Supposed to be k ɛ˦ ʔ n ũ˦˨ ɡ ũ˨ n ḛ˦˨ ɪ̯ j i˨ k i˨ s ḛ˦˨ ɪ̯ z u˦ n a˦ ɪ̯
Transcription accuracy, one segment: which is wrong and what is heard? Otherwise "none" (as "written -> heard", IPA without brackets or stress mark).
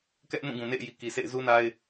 none